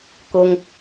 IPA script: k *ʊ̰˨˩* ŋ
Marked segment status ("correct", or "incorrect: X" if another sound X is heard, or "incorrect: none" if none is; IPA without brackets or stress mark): incorrect: ʊ˥